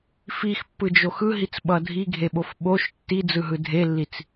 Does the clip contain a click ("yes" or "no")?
no